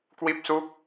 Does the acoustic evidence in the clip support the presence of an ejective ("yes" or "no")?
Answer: no